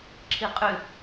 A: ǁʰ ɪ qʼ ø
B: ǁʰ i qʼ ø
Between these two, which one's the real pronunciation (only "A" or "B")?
B